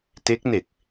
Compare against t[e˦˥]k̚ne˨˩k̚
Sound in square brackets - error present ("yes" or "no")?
no